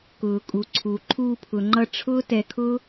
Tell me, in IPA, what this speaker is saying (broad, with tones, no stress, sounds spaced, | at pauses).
k ʊː˨ kʼ u˨ ǀʰ u˨ ǃʰ uː˧ pʰ ʊ˨ ŋ͡ǃ ʌ˧ ʈ͡ʂʰ ʊː˦ t ɛ˧ kʰ ʊː˦